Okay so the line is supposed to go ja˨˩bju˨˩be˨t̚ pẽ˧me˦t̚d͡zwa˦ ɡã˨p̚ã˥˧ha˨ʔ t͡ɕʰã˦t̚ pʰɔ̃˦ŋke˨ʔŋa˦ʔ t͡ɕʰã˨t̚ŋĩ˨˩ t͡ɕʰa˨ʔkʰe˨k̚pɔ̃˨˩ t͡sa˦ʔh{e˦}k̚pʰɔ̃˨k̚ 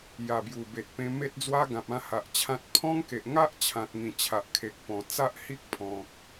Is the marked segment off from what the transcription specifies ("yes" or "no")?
yes